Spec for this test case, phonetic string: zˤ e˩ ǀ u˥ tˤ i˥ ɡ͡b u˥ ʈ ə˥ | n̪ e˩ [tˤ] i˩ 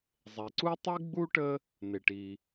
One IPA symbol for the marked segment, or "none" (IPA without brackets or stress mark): ʈ